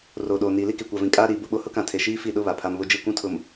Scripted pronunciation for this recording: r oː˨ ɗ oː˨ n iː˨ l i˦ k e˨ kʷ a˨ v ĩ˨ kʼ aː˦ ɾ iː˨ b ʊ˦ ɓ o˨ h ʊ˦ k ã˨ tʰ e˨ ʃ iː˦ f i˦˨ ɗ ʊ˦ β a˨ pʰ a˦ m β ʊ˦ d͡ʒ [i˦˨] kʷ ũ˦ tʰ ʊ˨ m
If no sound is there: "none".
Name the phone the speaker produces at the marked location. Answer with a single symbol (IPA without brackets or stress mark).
i˦˨